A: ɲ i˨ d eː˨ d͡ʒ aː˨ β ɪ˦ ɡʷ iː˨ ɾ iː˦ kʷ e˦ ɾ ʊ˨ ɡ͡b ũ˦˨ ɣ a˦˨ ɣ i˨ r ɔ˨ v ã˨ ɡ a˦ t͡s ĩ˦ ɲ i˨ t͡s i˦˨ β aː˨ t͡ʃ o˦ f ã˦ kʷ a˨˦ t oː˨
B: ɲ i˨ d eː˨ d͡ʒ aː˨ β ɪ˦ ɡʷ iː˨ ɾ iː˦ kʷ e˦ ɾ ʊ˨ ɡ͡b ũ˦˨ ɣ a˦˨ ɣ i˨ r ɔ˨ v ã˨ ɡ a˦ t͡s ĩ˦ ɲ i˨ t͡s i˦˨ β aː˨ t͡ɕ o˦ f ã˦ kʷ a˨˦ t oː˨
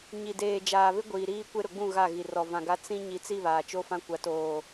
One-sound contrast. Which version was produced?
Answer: A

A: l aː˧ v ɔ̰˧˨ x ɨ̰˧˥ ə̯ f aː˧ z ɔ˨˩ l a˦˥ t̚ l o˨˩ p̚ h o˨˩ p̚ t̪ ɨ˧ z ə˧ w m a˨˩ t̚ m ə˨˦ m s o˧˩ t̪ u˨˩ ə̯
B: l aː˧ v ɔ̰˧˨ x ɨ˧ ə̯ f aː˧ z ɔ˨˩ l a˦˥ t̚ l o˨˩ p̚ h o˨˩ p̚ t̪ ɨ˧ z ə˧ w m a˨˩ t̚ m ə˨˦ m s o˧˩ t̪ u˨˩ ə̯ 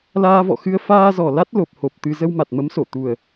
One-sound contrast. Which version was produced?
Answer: B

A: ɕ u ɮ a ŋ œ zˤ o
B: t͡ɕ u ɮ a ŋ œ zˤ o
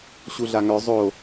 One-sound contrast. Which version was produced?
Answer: A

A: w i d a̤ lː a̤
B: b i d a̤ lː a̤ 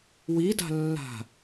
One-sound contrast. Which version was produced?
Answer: A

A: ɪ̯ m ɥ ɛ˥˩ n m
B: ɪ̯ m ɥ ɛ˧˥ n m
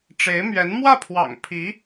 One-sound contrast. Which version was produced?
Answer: B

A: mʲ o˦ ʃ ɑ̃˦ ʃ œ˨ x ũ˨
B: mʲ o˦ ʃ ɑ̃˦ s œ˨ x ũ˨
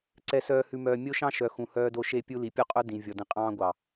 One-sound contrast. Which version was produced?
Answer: A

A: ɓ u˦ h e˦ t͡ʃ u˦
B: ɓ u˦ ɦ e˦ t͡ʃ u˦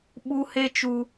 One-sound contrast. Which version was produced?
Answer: A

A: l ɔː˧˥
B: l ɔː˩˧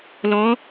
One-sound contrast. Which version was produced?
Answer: A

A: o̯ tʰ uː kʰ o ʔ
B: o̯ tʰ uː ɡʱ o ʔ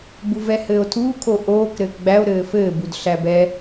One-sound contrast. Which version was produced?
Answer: A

